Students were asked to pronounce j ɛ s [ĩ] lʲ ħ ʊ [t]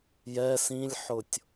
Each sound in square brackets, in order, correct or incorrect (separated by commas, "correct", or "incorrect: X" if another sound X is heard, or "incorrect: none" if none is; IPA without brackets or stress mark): correct, incorrect: tʲ